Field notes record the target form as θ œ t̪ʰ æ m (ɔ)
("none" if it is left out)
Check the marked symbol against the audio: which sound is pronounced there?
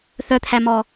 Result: ɔ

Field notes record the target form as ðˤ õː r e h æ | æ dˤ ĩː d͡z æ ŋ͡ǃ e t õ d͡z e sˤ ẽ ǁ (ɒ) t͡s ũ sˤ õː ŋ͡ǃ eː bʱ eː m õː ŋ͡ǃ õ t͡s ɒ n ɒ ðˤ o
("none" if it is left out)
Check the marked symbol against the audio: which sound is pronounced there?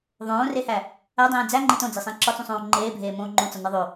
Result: ɒ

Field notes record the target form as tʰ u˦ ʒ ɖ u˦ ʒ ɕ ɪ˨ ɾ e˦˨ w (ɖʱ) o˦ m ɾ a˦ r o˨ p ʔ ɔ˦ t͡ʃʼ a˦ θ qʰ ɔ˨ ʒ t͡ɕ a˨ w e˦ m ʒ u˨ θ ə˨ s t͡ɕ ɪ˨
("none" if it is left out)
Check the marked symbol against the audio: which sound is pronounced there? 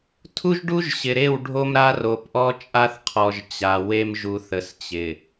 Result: ɖʱ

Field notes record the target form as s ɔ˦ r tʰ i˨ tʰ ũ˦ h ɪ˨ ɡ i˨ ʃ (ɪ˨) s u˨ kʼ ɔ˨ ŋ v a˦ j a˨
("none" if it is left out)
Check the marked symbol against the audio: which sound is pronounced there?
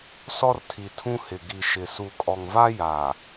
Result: ɪ˨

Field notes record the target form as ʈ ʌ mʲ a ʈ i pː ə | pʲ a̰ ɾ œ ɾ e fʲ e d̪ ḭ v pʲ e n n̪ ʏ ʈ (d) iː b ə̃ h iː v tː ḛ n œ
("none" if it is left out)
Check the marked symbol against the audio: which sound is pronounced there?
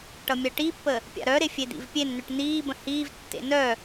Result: n̪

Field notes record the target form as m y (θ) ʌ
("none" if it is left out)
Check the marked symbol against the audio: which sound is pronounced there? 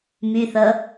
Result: θ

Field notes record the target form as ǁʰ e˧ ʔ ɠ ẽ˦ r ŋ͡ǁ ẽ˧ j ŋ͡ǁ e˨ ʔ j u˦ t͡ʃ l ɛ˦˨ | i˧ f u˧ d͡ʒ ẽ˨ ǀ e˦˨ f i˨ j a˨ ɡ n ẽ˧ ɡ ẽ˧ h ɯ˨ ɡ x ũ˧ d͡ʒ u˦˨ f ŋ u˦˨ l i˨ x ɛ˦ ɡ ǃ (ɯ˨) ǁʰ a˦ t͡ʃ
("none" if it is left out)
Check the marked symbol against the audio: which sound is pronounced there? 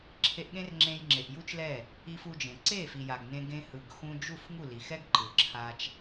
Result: ɯ˨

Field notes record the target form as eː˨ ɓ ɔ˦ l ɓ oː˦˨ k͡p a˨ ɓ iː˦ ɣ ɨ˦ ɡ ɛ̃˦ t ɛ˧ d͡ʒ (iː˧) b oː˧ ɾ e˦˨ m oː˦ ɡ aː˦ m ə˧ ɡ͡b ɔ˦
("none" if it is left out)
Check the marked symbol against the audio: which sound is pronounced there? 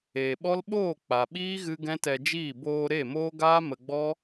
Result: iː˦˨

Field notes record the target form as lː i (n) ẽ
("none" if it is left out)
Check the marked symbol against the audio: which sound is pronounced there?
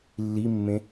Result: mː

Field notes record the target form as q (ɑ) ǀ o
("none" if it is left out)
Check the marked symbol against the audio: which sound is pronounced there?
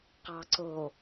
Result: ɑ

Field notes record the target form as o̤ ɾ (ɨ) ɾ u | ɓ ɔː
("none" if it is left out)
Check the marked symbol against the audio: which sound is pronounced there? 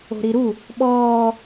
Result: i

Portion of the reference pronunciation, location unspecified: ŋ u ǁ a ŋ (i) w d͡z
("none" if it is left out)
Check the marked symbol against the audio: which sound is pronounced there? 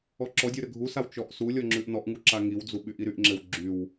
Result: i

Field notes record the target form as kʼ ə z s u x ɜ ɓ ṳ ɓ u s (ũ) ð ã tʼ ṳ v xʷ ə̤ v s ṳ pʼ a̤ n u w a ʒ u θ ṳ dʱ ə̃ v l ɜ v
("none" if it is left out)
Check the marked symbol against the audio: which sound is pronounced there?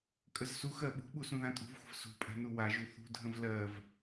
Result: ũ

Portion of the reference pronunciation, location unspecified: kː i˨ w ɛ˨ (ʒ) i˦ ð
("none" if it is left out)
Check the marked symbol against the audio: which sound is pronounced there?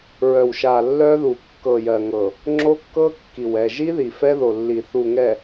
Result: ʒ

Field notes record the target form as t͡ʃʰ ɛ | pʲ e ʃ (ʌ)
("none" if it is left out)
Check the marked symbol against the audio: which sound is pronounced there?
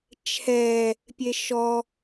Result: ɔ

